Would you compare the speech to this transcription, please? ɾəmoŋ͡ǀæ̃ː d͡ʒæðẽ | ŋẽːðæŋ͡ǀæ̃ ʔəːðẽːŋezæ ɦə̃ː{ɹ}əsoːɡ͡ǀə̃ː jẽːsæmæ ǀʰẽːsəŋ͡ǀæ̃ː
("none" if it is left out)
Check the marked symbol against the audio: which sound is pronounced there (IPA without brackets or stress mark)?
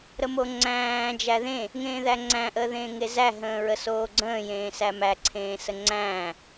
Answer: ɹ